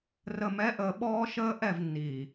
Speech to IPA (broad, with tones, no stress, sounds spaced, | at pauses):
r ə˨ m ɛ˨˦ ʔ əː˨ ɓ ɔː˦ ʃ əː˦ ʔ ɛ˦˨ v nː iː˨